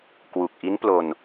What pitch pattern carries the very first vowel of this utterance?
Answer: low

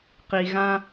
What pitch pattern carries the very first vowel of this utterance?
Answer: low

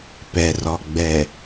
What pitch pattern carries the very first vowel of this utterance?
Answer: low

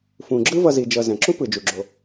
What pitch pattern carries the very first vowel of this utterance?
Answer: low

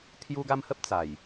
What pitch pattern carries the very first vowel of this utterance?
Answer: high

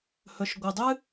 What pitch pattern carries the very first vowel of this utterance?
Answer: low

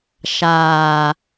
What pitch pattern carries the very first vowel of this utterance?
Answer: low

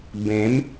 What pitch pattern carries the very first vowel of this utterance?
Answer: rising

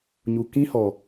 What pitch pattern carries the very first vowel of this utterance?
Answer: low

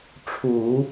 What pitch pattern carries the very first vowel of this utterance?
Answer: low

